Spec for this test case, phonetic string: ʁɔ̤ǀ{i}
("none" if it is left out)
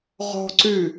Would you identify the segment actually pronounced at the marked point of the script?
y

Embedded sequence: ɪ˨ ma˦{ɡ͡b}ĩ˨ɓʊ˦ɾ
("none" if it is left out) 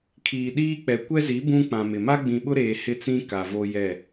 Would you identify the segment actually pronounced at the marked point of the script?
ɡ͡b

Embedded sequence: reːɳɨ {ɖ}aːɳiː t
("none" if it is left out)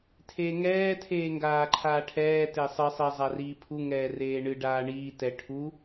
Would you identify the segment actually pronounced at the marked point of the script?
ɖ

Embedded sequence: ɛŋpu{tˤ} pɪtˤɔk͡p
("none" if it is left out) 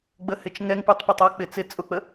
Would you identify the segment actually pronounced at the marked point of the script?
tˤ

